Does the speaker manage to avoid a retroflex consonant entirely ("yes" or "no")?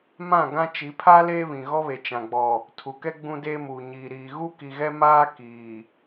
yes